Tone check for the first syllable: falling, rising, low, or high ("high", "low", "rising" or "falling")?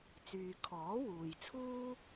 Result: low